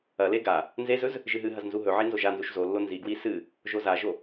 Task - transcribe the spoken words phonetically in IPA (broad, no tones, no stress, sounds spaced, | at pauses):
ɐ l e ɡ a | n z e z ɵ z | ʒ ɨ ɦ ɨ ɦ ɐ z n z u ɦ ɵ ʕ i n z o ʒ a n z u ʃ z o lː o n z i ɡ w i s ɨ | ʒ o z a ʒ o